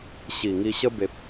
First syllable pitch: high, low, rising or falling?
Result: low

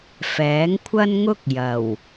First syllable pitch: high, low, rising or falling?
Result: rising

